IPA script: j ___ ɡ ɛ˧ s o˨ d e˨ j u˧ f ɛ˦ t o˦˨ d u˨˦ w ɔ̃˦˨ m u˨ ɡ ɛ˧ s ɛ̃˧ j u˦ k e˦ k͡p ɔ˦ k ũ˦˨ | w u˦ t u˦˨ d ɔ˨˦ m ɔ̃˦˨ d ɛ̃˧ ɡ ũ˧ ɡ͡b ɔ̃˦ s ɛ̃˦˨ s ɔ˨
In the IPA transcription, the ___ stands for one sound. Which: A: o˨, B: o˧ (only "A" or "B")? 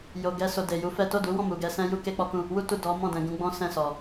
A